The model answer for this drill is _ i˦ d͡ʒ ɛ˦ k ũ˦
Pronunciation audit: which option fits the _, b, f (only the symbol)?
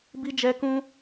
b